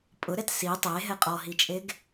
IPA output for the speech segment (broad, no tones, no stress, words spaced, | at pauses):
pʼʊɾɛt si tˤeɦɛ qʼɔɦit͡ʃʼeɡ